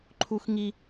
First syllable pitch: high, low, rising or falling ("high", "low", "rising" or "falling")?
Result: high